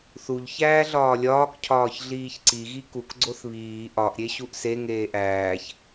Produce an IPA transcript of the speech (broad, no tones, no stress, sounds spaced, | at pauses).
θ u ʎ ç æː ɮ ɒː lʲ ɒː k cʰ ɒː ç ɮ iː ç ǀ i ɣ i k u k ɡ͡ǀ o θ β iː ʔ ɒ ʔ ɾʲ e ɕ u ʔ s e ŋ eː ʔ æː ç